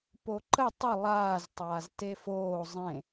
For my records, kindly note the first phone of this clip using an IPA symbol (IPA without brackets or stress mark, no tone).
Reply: p